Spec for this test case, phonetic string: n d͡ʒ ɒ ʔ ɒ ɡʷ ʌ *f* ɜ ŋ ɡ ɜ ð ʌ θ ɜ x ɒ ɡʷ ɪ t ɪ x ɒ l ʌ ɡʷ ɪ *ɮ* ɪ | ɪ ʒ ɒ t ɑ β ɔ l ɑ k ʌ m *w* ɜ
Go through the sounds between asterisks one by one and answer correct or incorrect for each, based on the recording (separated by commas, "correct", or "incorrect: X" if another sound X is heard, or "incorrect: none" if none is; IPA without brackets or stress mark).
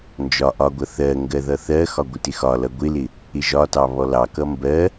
incorrect: θ, incorrect: l, incorrect: b